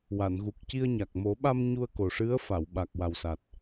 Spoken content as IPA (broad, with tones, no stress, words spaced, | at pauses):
wa˨˩˨nɣu˨˩k̚ci˧ə̯ɲa˨˩k̚ mo˨˩˦ɓa˧m ɲu˧ə̯ko˨˩ʂɨ˧˥ə̯ fa˨˩˨wɓa˨˩k̚ wa˨˩wsa˨˩t̚